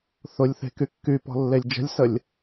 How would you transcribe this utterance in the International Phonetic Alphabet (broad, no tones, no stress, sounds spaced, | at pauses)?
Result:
θ ʊ lʲ θ e̤ k y kː y p ɔ̤ lː e lʲ d͡ʒ ə̤ lʲ s ə lʲ